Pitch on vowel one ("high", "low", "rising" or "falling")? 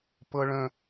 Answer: high